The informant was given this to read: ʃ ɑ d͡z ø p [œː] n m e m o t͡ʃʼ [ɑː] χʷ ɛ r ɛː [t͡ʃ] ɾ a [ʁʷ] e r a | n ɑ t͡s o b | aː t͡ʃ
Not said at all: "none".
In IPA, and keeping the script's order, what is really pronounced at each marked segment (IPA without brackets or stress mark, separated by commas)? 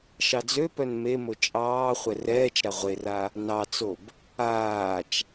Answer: œ, ɑː, t͡ʃ, ʁʷ